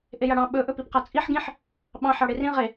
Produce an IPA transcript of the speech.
ʔejaɽɑ̃ ɓɵ ʔɵpipqat͡sʼiħ ɡĩħ | ɓɑ̃ ħɑɽerĩ ʁe

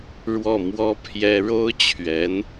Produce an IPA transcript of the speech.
ɻwɔ˥˩mwɔ˥pʰjɛ˥ ɻo˥ʊ̯t͡ɕʰɥɛ˧˥n

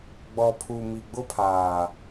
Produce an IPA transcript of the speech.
ɡ͡bɔ˨pʰu˨ mi˨ɡ͡bʊ˦pʰaː˨

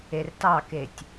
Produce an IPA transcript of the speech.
ertɑketʲ

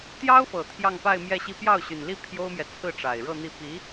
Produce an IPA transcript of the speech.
t̪jɑ˥ʊ̯fɤ˨˩ t̪ʰjɑ˥˧ŋpa˥˧ɪ̯mjɛ˥˧ɕi˥˧ pjɑ˥˩ʊ̯ɕy˨˩nli˥˩ pʰjo˥ʊ̯mjɛ˨ t͡sʰɹ̩˥˩ʈ͡ʂa˨˩ɪ̯ ɻɤ˥˧n̪i˥˩ pi˧˥

